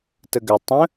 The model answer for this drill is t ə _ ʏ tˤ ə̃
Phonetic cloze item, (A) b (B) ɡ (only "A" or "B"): B